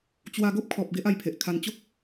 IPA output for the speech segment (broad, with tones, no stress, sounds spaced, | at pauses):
t͡ɕ w a˧ ɡ o˦ p̚ kʰ ɔ˨ p̚ ɡ e˦ ʔ a˧ j pʰ e˨ ʔ kʰ a˧ n t͡ɕ o˦ k̚